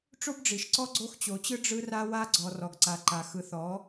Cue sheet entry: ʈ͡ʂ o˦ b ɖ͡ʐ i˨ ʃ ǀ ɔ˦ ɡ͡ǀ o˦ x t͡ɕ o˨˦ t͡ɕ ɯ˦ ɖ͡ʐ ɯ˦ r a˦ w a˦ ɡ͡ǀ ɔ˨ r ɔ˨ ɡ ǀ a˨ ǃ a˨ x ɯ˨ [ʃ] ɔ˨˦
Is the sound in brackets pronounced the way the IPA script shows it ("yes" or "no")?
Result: no